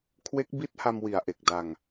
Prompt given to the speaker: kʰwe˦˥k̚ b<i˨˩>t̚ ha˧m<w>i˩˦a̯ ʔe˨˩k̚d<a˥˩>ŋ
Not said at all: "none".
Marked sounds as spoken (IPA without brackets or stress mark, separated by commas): i˦˥, w, a˧